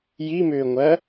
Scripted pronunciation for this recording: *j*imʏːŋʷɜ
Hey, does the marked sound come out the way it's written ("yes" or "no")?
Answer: yes